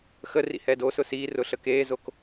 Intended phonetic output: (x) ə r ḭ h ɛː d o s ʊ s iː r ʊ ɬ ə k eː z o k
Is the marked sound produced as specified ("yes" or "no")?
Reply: yes